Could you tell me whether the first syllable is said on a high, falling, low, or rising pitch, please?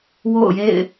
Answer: falling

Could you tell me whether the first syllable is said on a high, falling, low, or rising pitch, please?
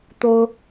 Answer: high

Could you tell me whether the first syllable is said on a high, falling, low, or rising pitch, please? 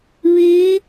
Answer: rising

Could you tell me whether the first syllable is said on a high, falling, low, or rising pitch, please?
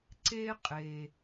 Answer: high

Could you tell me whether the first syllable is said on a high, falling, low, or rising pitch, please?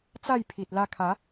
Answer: falling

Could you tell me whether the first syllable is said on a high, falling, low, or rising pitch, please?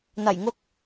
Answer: low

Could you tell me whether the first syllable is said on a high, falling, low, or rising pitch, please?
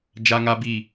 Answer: high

